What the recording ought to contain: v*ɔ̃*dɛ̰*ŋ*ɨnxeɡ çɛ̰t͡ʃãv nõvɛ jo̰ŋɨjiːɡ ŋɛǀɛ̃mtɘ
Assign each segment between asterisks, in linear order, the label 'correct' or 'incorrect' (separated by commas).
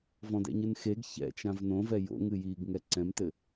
correct, incorrect